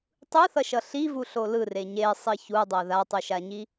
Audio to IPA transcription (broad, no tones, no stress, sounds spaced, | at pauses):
tˤ ɯ θ ʌ ʃ ʌ ɬ i v u ɬ o l ɯ r e ɲ e sˤ i ç u dˤ o ð a tˤ u ʃ a ɲ i